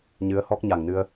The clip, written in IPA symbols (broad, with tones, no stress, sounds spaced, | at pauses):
ɲ ɨ˨˦ ə̯ h ɔ˦˥ k̚ ɲ a˨˩ ŋ n ɨ˧ ə̯